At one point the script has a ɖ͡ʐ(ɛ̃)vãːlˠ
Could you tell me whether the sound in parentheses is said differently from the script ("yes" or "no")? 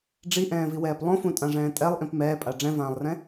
no